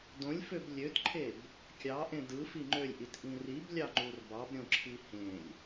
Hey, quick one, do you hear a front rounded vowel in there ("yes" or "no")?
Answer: yes